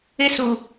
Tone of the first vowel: high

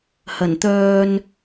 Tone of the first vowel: low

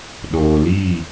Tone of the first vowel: low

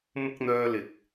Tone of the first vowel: high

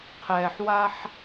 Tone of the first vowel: low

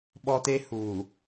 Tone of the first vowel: high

